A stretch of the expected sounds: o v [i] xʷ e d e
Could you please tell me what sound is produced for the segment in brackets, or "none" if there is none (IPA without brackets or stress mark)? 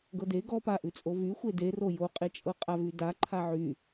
y